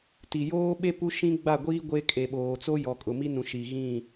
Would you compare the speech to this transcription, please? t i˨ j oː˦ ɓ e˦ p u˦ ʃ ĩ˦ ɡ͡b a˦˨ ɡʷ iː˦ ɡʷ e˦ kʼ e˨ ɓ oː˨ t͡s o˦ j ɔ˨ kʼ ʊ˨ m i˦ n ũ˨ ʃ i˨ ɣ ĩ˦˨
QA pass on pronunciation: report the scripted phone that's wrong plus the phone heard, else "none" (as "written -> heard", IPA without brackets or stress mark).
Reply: none